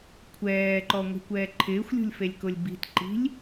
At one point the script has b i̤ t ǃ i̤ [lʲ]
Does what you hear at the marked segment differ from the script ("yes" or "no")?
no